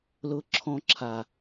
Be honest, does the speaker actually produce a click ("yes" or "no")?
yes